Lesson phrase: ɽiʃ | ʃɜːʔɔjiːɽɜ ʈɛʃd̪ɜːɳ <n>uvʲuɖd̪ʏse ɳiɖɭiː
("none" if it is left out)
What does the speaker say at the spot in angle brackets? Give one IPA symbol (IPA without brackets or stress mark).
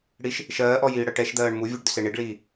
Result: m